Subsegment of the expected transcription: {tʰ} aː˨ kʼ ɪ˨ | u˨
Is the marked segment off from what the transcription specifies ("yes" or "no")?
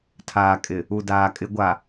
no